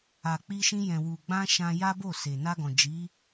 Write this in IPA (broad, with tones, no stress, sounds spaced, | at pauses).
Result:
a˨ k͡p i˧ ʃ ĩ˧ j ɛ̃˨ w u˨ ɡ͡b ã˧ ʃ ã˧ j a˦ b o˦˨ s e˨ n a˧ ɡ ɔ̃˨ d͡ʒ i˨˦